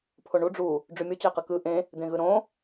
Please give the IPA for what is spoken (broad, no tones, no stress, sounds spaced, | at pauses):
pʰ o ɳ u ɖ͡ʐ u | ɖ͡ʐ y mʲ o t͡ɕ æ q ɯ k ɯ ʔ ẽ | d̪ ẽ ɣ ɯ ɾ õ